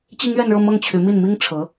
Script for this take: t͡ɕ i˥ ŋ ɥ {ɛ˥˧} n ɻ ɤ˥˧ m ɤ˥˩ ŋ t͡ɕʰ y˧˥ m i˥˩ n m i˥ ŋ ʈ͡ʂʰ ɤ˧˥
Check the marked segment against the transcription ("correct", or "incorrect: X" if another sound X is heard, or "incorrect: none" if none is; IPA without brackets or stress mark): correct